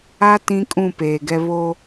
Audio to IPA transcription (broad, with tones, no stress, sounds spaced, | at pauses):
a˦ t ĩ˦ kʼ ũ˦˨ p eː˨ ɡ ɛ˦ β o˦